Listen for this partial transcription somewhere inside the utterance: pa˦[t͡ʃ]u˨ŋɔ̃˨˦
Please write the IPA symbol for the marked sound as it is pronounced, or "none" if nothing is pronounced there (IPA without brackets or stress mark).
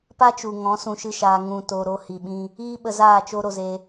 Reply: t͡ʃ